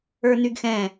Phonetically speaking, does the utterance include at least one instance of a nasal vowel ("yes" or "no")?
yes